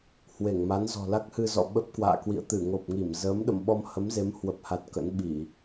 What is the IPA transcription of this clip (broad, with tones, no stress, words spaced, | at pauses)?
hwe˧˩ŋma˨˦n zɔ̤˨˩la˦˥k̚ hɨ˧zɔ̰˧˨ ɓə˦˥p̚kwa̰ː˧˨kwḭ˧˨ə̯ t̪ɨ˧˩ŋo˨˩p̚ŋi˧˩m zə˨˦m ɗə̰˧˨mɓɔ˧m hə˨˦mze˨˦m hwə˨˩p̚ha˨˩t̚ kə̰˧˥nɓi˧˩˨